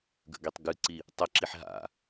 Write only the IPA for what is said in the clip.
ɡ ə̰ ɡ i tˤ ɡ ɨ ǀ i | tˤ ə ǁ i ħ ɦ a̰

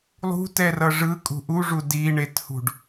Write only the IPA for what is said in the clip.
lˠ ṳ t ɛ r ʌ ʐ ɯ kʼ ṳ ʔ u ʐ u d i ɳ e t h ṳ ɖ

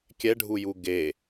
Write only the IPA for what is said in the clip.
kʲ ɛ ɖʱ u j u ɡ e

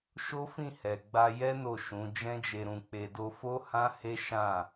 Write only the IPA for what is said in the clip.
ʃ o˦ f ĩ˦˨ h ɛ˨ ɡ͡b a˧ j ɛ˦ n o˦˨ ʃ ũ˨˦ d͡ʒ ɛ̃˦ d͡ʒ e˧ ɾ ũ˧ k͡p e˧ d o˦ f o˦ h ã˦ h e˦ ʃ ã˦˨

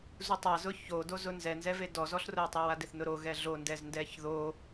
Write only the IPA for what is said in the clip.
z u tˤ a z ʊ ç o d o z ʊ n z ɛ n z ɛ v e d ɔ z ɔ ɬ r ʊ ə̯ tˤ e w a d ɪ θ n ʊ ɾ o ɣ ɛ ɮ o n d ɛ z n d ɛ ç ð o

